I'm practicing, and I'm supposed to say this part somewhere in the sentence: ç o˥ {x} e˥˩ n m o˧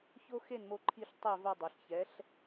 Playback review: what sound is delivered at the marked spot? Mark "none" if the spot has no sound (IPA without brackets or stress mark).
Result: x